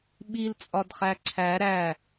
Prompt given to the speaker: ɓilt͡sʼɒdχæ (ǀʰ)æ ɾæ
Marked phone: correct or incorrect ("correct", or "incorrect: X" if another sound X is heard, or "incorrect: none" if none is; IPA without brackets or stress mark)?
correct